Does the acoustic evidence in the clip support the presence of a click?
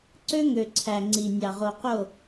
yes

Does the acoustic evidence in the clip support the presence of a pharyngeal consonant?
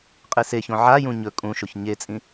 yes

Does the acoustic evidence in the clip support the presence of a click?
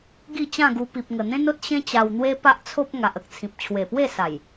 no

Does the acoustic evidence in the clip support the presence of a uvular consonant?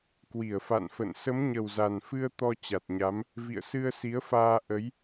no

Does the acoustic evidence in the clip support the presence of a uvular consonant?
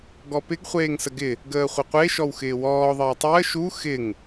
yes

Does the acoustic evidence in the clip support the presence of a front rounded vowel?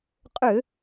yes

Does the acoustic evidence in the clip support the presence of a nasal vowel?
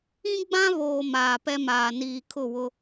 yes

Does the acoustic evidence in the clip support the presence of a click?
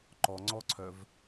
yes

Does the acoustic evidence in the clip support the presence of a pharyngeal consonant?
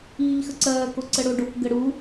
no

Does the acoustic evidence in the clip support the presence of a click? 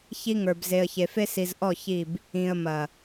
no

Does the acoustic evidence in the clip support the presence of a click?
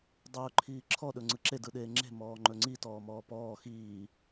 yes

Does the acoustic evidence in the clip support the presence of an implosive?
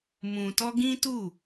no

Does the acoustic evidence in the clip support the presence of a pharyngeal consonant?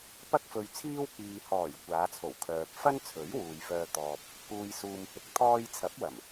no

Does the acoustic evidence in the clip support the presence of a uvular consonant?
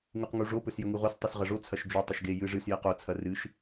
yes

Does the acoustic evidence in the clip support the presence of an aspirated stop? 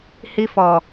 no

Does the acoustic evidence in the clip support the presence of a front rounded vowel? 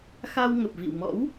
no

